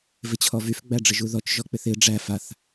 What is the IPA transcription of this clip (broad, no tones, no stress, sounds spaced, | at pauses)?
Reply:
v ɪ t͡ɕʰ ɔ v y f ɡ͡b æ ɖ͡ʐ ɪ ʒ u ð ɔ t͡ʃ ʒ ɔ k͡p ɪ θ ɪ ɖ͡ʐ æ f a θ